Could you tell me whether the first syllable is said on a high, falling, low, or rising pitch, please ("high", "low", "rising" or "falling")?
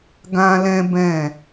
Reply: high